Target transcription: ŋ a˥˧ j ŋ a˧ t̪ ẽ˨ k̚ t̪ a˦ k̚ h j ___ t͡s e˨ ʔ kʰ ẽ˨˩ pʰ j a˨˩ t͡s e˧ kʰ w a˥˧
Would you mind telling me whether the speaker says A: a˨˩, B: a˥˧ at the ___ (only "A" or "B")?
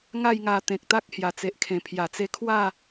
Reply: A